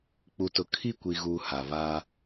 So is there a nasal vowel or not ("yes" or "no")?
no